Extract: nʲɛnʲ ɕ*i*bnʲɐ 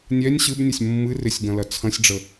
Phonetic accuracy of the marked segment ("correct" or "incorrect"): incorrect